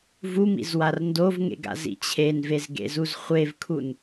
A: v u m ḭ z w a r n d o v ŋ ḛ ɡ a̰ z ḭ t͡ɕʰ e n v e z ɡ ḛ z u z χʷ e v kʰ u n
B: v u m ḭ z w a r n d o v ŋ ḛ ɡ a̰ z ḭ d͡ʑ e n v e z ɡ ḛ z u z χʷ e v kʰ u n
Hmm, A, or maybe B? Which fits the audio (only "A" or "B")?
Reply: A